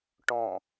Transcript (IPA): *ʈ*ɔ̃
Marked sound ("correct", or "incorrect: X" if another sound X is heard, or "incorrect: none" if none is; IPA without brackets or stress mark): correct